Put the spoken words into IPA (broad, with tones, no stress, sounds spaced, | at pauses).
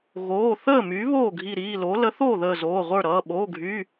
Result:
ɣ oː˩˧˩ θ əː˥˩ m y˩˥ β oː˥˩ ɡʱ i˧˩ ɾ iː˩˧˩ l o˩˥ l ə˩˥ θ oː˥˩ ð əː˧˩ z oː˩˧˩ ʁʷ ə˞˥˩ ɾ ʌː˩˧˩ ɓ oː˩˧˩ ɡʱ yː˩˧˩